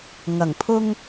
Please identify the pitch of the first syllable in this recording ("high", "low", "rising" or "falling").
low